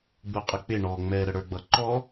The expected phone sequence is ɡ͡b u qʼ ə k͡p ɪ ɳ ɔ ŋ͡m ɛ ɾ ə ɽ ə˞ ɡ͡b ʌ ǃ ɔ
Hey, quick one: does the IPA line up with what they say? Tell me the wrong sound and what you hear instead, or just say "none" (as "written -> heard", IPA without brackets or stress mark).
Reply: none